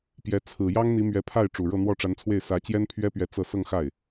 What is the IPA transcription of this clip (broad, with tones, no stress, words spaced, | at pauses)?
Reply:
pjɛ˧˥ t͡sʰɹ̩˨˩ jɑ˥ŋn̪i˧˥ mɥɛ˧˥pʰa˥˩ɪ̯ ʈ͡ʂu˨˩ɻɤ˥˧n̪wɔ˥˩ ʈ͡ʂa˧˥nt͡sʰwe˥˩ɪ̯ sä˧˥t͡ɕjɛ˥npʰɥɛ˥pɥɛ˧˥ t͡sɤ˥˧ sɤ˥˧ŋxa˥˩ɪ̯